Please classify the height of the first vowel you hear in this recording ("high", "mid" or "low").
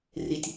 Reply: high